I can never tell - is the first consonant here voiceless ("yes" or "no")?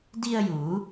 no